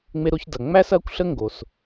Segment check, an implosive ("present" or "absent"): absent